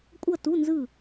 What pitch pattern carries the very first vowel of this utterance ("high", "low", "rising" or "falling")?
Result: falling